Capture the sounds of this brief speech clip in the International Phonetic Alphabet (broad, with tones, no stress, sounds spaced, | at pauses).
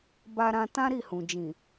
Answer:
b a˧ ɾ ã˧ t ã˦ ɾ i˦˨ h ũ˨ d͡ʒ ĩ˨